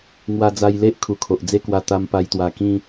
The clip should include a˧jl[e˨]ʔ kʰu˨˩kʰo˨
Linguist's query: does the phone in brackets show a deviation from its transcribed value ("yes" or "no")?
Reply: yes